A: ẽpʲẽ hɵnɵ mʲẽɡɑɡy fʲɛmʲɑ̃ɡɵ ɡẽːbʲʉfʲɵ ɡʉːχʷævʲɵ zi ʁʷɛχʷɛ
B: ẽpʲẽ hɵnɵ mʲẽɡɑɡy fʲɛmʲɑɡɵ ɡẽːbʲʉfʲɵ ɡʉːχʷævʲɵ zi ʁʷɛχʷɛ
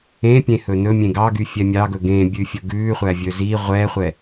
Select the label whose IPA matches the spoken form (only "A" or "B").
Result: B